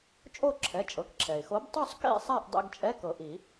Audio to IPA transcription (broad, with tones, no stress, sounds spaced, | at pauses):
t͡ʃʼ o˥˨ ǁʰ ɛ˩˧˩ t͡ʃʼ ɤ˩˧˩ k ǁʰ ɛ˩ ɪ̯ x o˨˥ b tˤ u˥˨ sˤ k ḛ˥˨ sˤ a˥˨ ʔ dˤ ḛ˧˥˧ ɡ t͡ʃʼ ɛ˧˥˧ k ɤ˨˩˦ ʔ i˨˩˦